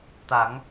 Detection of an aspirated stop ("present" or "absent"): absent